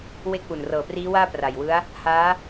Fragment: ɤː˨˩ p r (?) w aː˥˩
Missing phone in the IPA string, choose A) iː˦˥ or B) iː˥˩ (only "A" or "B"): A